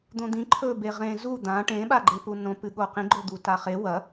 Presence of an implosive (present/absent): present